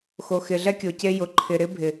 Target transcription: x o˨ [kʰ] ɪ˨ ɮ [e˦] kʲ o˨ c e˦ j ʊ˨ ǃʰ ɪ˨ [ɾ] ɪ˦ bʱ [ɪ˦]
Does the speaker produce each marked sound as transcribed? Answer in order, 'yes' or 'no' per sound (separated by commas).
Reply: no, no, yes, no